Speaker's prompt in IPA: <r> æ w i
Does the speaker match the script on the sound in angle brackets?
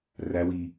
yes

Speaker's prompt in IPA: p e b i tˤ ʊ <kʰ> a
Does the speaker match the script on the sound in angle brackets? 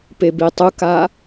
no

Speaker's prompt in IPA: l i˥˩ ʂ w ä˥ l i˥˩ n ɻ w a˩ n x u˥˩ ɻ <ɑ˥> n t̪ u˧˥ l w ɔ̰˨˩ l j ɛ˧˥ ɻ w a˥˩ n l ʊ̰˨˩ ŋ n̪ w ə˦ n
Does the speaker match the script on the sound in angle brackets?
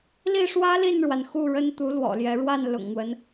no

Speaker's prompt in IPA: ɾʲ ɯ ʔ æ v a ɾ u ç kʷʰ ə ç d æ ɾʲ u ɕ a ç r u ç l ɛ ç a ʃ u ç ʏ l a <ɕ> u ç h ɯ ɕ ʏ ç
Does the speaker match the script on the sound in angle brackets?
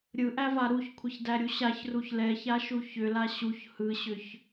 yes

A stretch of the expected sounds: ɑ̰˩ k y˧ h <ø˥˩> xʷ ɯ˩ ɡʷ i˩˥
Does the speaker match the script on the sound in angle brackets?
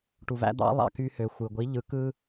no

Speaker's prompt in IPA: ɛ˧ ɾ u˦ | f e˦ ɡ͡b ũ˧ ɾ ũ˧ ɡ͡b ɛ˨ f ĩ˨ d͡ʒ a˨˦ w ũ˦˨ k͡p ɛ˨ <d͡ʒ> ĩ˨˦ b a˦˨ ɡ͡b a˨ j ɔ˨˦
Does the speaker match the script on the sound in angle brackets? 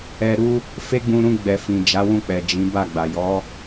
yes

